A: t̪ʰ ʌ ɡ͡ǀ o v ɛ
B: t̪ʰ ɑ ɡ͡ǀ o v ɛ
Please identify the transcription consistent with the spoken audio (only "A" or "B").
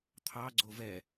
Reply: B